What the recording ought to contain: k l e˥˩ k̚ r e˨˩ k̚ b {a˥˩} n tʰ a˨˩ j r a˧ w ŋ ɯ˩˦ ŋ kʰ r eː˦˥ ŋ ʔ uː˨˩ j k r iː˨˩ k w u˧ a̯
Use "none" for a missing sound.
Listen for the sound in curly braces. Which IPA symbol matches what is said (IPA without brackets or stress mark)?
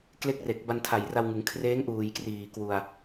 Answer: a˧